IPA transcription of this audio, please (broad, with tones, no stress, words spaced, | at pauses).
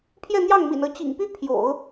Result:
pʰjɛ˥˧n̪jɑ˥˩ŋmḭ˨˩nɤ˧˥ t͡ɕḭ˨˩ŋpy˥ pʰjo̰˨˩˦ʊ̯